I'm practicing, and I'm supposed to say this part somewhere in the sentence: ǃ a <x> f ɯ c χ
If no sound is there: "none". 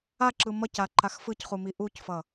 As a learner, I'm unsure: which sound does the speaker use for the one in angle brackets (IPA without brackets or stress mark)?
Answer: x